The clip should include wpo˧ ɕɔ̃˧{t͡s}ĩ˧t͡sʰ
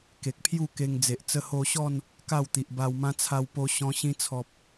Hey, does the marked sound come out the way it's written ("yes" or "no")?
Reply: no